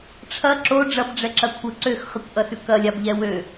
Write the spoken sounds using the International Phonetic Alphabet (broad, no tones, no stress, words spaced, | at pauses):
ʈ͡ʂʰɐ ǁo ɖ͡ʐɐbɖ͡ʐɛǁɐ kʷʰə ǀøxχɨkʷʔɐsʉ kɐlʲabʎɛ wø